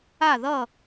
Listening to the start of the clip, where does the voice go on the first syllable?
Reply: falling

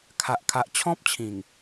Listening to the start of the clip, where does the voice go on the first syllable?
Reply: high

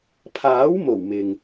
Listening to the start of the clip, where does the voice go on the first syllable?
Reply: rising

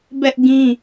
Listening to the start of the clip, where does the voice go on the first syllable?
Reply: high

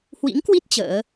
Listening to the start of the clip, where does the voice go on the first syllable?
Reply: rising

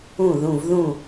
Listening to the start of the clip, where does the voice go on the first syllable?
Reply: falling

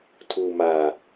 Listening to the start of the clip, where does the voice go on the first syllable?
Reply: low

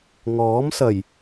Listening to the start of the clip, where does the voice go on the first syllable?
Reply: rising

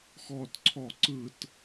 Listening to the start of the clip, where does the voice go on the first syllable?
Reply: falling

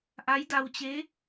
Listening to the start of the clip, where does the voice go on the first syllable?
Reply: rising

